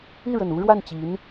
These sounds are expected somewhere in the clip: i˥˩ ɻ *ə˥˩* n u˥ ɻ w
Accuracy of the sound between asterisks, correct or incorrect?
incorrect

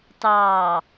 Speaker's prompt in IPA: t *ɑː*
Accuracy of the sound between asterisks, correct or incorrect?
correct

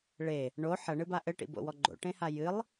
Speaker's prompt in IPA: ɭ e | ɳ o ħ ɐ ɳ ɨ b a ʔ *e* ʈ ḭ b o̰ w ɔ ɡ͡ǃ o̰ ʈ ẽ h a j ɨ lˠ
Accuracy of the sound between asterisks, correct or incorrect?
incorrect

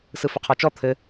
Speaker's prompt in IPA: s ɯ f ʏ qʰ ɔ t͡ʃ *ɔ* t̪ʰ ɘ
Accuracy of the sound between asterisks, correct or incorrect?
correct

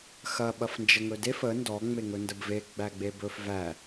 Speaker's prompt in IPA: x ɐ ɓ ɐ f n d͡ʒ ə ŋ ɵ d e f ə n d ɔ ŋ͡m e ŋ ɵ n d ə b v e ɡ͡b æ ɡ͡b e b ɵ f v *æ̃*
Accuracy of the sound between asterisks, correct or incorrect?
incorrect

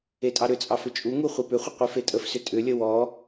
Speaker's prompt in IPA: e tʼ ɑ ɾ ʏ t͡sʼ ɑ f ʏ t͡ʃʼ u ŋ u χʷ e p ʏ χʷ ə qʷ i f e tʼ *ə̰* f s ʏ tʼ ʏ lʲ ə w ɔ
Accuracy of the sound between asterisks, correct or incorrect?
incorrect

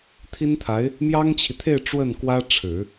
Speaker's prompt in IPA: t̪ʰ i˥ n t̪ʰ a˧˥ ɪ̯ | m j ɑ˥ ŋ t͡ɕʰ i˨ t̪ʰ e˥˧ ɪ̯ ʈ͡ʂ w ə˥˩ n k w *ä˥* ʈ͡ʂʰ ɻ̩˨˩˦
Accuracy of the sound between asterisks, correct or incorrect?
correct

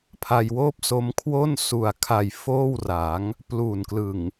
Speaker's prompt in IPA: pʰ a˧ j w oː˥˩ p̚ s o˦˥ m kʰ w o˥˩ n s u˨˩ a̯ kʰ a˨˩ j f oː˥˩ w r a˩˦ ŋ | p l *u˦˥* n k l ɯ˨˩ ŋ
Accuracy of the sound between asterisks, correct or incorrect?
incorrect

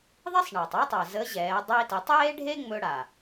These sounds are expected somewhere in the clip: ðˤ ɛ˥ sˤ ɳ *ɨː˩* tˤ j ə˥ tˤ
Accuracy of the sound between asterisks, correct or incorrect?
incorrect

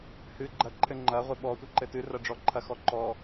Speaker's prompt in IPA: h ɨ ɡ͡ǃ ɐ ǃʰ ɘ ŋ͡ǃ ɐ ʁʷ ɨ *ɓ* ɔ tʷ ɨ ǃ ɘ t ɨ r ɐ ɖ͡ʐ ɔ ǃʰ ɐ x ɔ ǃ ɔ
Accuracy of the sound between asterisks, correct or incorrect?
correct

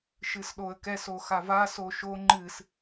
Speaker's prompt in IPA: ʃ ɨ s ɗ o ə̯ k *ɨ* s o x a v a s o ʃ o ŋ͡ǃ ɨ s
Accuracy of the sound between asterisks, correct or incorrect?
incorrect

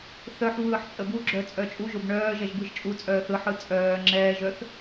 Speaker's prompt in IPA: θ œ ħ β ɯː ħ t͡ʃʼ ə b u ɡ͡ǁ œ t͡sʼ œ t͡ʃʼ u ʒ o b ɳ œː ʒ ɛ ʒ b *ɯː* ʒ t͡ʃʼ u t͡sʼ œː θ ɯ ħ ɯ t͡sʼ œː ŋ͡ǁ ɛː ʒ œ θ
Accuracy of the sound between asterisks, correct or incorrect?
incorrect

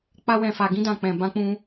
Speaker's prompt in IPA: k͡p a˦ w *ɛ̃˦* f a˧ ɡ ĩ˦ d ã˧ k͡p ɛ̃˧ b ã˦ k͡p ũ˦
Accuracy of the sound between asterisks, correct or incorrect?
incorrect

